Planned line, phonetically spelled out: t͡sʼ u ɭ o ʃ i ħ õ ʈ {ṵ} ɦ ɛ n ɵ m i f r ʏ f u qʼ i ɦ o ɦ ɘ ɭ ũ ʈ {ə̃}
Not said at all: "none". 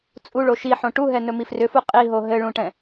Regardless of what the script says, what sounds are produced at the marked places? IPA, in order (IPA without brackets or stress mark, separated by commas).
u, ɛ̃